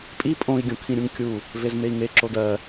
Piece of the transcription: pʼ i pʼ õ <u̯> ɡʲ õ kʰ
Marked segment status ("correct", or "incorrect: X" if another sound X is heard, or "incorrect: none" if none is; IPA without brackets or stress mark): incorrect: i̯